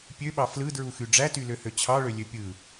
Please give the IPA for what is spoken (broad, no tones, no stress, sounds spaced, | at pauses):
pʲ ø ɓ ɑ f l ɯ d ɹ u x y ɖ͡ʐ æ t y l ø h ø t͡ɕʰ ɑ ɭ ø lʲ ø pʲ ɯ